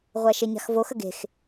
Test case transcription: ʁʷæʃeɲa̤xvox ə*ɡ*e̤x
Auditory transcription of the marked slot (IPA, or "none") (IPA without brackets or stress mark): ɡ